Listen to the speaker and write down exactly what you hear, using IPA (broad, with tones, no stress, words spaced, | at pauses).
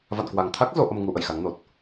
va̰˧˨nkwa˨˩ŋt̪ʰa˦˥k̚ zo˨˦ʔə˧mŋu˨˦ ʔə̰˧˨jxa˨˦ŋno˨˩t̚